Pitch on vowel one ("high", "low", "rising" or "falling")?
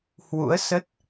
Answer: rising